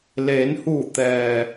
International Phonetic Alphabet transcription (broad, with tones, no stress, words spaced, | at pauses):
leː˩˧nhuː˧˩ t̪ɛː˩